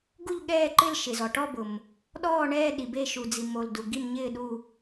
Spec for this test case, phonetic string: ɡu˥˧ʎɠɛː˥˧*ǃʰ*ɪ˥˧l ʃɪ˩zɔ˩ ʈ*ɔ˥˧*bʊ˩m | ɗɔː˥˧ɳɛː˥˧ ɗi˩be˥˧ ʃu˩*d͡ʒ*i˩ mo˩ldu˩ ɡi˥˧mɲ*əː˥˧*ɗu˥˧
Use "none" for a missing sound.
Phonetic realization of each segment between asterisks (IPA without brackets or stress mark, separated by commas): ǃ, ɔ˥˧, d͡z, ɪː˥˧